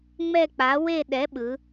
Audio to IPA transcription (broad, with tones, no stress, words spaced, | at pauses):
ŋ͡mɛ˥˧k͡pa˨˥we˥˧ ɗɛ˨˥ɓɯ˩˧